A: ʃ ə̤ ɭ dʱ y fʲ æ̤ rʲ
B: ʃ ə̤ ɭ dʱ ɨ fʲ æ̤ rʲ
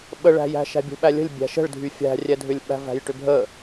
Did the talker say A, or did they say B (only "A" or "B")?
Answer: A